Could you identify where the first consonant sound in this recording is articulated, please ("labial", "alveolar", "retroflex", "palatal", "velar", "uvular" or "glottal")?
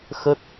velar